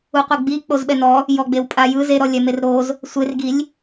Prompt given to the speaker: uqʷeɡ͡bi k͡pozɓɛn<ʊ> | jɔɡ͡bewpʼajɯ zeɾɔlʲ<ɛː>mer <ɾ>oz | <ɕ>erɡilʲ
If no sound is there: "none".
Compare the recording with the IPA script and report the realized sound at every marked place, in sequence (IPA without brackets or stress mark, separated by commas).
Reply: ɔ, ɛ, ɾ, sʷ